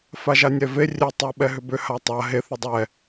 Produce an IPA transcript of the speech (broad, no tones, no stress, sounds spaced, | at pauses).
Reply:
f a ʒ a nʲ ɛ v e rʲ e tˤ o ɓ ɛ ɦ ʏ b ʏ h a tˤ a ɦ e θ ʏ dˤ ɛ